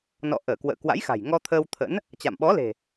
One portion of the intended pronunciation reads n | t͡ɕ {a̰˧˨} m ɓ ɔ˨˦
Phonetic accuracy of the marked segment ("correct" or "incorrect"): correct